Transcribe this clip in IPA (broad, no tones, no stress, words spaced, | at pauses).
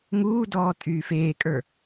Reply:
ŋuː dɔːtʼyːfeːkʼə˞